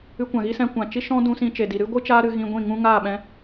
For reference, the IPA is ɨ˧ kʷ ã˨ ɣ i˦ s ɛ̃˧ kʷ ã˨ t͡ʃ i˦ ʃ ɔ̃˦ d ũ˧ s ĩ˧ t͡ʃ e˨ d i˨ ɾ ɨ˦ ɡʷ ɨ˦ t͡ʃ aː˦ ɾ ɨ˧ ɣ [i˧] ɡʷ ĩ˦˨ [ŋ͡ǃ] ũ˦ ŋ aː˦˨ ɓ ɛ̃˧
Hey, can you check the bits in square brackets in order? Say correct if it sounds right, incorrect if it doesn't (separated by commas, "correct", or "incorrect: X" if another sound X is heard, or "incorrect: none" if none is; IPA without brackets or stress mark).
incorrect: ĩ˧, incorrect: ŋ